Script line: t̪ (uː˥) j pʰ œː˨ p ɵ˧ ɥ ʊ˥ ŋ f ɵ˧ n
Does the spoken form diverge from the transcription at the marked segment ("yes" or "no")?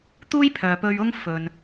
no